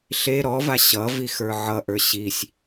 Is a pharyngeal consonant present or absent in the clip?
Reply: present